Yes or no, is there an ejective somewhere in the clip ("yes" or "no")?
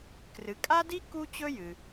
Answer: yes